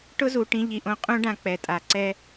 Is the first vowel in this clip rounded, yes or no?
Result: yes